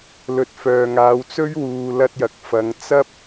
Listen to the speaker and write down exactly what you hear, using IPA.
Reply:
lɵ˨˥t̚fœː˨ŋaː˨˧w t͡sɵ˥ɥwuː˨lɐ˧t̚ jɐ˨k̚fɐ˨˧ŋ t͡sɐ˥p̚

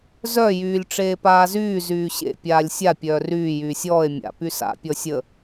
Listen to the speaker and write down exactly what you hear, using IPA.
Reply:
zœ jyːlʲʈ͡ʂeːpaːzyː zyːɕḛ pʲaːlʲsʲa pʲœːryː jyːsʲɔːe̯ mʲa̰ pysa̰ pʲɔsʲə

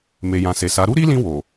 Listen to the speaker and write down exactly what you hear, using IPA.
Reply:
me˨jã˨se˨sa˨˦ ɾu˦ɾi˦lĩ˧ wo˨

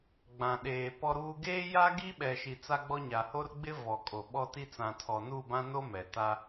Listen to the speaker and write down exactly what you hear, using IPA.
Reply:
ɡ͡bã˨ɗeː˨pɔ˦ɾuː˦ ɡeː˦ja˦ ɡi˦ɓɛ˨ ʃi˨t͡sa˦ɡ͡bɔ˦ɲa˨ ho˦rɡ͡bɪ˦ vɔ˨kʼo˨ ɓɔ˦ti˦ t͡sã˨tʰɔ˨ nu˦˨bã˦no˦ mɛ˨ta˦

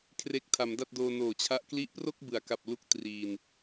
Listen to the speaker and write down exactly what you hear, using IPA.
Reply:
kʰre˦˥k̚tʰa˩˦mda˥˩t̚doː˧ noː˨˩t͡ɕʰa˦˥ʔ kli˦˥ʔpro˥˩k̚bɯ˩˦a̯ ka˨˩p̚lu˦˥k̚ triː˧n

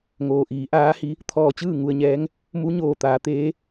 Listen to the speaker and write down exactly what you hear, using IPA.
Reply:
ŋoː˩ ʔiː˩˧ ʔaː˧˥hi˧˥ | t̪ʰɔː˧˩t͡ɕɯː˥˨ ŋu˧ə̯ɲɛː˧˥ŋ | mu˧˥ɲoː˧˩t̪aː˩˧ t̪eː˧˥

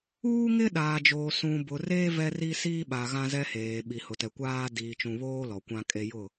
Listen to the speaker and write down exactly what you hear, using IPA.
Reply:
uː˦ŋɪ˦ɗaː˨d͡ʒoː˨ sũ˨bʊ˨reː˦ vɛ˦ ri˦siː˦ɓa˨ ɣã˦zɛ˦heː˨ ɓi˨hʊ˨tɛ˨kʷaː˦ diː˨t͡ʃũ˨βoː˦ lɔ˨kʷã˦kʼe˦ jʊ˦˨

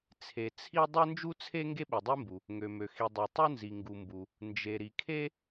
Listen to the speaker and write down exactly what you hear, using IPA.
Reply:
t͡sʰe˩ t͡sʰi˥ dˤø˥nd͡ʒu˥t͡sʰe˥ ŋɡe˥ɓi˩dˤe˥mbu˩ | ŋø˩mø˩ xi˩dˤø˩ tˤu˥nzi˩ ŋɡu˩mbu˩ | nd͡ʒe˩ ɾi˩kʰe˥

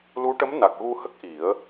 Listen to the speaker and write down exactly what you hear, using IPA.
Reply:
lu˧˥ʈə˧˥m na˨˩k̚ɣu˧hə˦˥k̚ ʔi˨˩˦ə̯

